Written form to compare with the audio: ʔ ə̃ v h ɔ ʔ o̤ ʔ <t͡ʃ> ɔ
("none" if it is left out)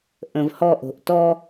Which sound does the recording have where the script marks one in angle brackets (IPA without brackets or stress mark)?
t